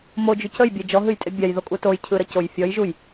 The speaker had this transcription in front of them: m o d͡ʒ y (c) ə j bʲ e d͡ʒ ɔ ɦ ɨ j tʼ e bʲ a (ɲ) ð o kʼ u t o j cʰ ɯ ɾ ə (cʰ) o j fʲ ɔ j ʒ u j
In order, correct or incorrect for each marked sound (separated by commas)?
correct, incorrect, incorrect